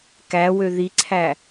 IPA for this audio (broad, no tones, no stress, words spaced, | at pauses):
kæwø ðiǀʰæ